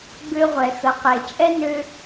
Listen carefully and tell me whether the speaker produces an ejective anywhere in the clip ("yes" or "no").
yes